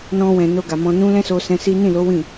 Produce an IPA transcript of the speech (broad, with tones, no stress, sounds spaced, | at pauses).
n ɔ̃˧ w ɛ̃˨ n o˧ ɡ a˨ m ɔ̃˧ n ũ˦ l ɛ̃˦ s o˧ s ɛ̃˧ s i˦ n ĩ˦˨ l o˨˦ w ĩ˦˨